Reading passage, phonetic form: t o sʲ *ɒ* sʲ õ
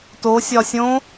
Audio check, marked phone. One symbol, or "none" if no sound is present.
ɒ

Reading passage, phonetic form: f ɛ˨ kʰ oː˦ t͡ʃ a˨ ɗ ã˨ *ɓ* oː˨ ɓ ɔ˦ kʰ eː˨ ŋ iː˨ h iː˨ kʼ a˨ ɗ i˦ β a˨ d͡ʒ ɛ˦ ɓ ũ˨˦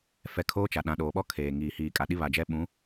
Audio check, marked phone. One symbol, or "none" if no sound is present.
ɗ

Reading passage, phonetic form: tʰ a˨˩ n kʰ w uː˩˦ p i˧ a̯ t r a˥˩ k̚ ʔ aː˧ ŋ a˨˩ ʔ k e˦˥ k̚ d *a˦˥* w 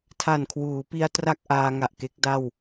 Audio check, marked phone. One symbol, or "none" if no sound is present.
a˥˩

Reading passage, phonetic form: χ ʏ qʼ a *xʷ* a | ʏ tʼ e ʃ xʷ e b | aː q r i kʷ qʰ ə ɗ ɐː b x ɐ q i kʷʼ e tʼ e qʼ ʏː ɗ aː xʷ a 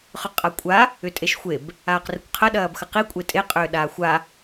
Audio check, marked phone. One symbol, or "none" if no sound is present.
kʷʼ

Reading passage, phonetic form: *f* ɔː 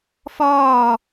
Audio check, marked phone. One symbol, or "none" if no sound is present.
f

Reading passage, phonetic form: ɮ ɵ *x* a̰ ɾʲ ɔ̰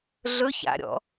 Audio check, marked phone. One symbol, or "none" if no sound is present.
ç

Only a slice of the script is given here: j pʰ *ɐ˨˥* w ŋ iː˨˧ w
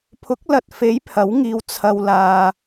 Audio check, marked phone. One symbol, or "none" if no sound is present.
ɐ˨˥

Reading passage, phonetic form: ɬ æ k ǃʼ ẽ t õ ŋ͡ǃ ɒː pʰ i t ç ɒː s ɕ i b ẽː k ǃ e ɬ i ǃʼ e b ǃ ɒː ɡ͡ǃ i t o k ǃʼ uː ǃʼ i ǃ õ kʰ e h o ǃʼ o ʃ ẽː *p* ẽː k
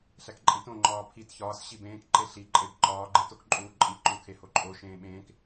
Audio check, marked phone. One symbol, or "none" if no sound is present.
ɓ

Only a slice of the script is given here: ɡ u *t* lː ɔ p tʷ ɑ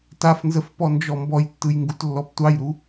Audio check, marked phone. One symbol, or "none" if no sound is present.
t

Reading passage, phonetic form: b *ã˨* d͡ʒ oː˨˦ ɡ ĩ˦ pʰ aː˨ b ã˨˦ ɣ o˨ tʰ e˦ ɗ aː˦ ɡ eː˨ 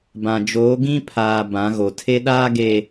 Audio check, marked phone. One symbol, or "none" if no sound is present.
ã˨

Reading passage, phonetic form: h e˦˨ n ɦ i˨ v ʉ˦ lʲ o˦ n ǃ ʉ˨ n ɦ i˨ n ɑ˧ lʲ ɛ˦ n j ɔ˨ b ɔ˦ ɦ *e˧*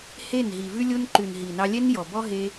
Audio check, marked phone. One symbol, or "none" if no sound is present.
e˧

